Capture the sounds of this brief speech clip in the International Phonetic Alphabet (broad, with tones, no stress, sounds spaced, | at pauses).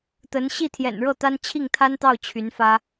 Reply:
t̪ ə˧˥ n ɕ i˥˩ t̪ʰ j ɛ̰˨˩ n ɻ ɤ˥˩ t̪ a˥ n t͡ɕʰ i˥˩ ŋ t̪ʰ a˥ n t̪ ɑ˥˩ ʊ̯ t͡ɕʰ y˧˥ n f ä˥